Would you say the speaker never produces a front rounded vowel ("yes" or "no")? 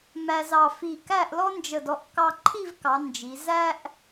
yes